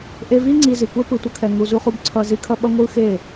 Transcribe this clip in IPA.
ʔ e˧ v i˦ ŋ͡ǀ i˧ z i˨ kʷ ɛ˦ p ɯ˨ tʷ ʌ˧ kʰ ɛ˨ ŋ u˨ z u˧ χ u˧ b ǀʰ ʌ˧ z i˧ kʰ ʌ˦ ɓ ʌ˦ ŋʷ ɯ˦ x e˦˨

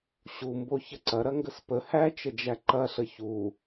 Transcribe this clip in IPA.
ɕ u m b o ç ə ǀ ɐ ɾ ɐ ŋ ɡ ə s p ə h æ t͡ʃ ə d͡ʒ æ ǃ ɐ ɬ ə ç u

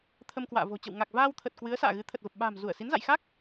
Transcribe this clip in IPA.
t̪ʰ ə˧ m k w a̰ː˧˨ v o̤˨˩ t͡ɕ ə̰˧˨ w ŋ a˨˩ k̚ v aː˧ w t̪ʰ ə˨˩ t̚ k w ɨ˨˦ ə̯ s a̰ː˧˨ ɣ ɨ˨˦ t̪ʰ ə˨˩ t̚ v ə˨˩ p̚ ɓ a̤ː˨˩ m z u˧˩ ə̯ s i˨˦ n z a̰˧˨ j x a˦˥ k̚

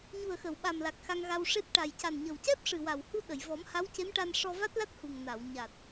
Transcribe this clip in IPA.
ɲ u˨˩ ə̯ x ə˨˩˨ w ɓ a˨˩ m l a˨˩ k̚ x a˧ ŋ ɣ a˧ w ʂ e˦˥ p̚ ʈ a˨˩ j c a˨˩ n ɲ ə˨˩ w c ɛ˦˥ p̚ ʂ ɨ˨˩ w a˨˩ w h u˧ ɗ ə˨˩˨ j v ɔ˨˩˦ m h a˧˥ w c e˧˥ m ʈ a˧ n ʂ ɔ˧ v a˦˥ t̚ l a˦˥ t̚ h u˨˩ ŋ n a˨˩˨ w ɲ a˨˩ t̚

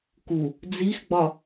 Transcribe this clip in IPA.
k u | d͡z i x ɡ͡b ɒ

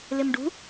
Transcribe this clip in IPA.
l ɪ m ɖ ṳ

